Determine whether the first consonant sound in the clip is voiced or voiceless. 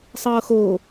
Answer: voiceless